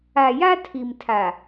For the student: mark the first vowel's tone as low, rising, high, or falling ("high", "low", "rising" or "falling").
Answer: low